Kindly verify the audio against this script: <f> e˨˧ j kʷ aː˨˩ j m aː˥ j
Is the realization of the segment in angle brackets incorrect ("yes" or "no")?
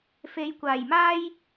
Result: no